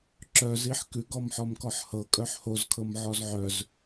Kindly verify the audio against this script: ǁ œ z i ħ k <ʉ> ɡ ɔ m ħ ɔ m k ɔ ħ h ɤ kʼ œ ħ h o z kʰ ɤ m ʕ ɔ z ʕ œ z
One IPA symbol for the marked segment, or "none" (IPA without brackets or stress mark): ʉ